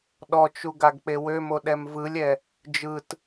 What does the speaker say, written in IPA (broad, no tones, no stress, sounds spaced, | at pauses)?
ɗ ɔ t͡ʃ u ɡ a ɡ k͡p e w ø m o ɗ ɛ m v ɯ lʲ ɛ | d͡ʒ ɯ t